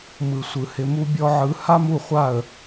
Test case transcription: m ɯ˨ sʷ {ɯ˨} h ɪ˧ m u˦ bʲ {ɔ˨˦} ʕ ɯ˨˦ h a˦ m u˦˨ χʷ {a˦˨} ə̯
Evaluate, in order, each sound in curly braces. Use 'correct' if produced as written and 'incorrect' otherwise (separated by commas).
correct, incorrect, correct